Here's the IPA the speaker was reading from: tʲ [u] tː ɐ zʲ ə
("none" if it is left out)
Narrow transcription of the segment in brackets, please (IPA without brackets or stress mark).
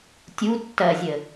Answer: u